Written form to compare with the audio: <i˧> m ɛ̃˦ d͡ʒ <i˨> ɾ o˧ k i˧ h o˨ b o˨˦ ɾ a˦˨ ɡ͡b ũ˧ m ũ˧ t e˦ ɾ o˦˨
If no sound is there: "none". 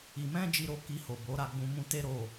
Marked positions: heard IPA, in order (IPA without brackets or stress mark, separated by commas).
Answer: i˧, i˧